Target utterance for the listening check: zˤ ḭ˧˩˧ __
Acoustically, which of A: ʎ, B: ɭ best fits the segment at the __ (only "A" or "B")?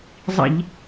A